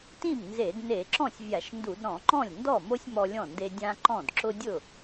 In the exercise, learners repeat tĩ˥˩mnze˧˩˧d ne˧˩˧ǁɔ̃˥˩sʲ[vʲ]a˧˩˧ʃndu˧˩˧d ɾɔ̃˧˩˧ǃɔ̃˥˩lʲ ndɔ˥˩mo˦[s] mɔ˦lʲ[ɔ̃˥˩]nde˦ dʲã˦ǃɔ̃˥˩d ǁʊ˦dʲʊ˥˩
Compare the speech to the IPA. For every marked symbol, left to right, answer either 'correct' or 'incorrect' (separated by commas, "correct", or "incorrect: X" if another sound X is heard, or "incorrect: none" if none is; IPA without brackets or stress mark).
correct, incorrect: sʲ, correct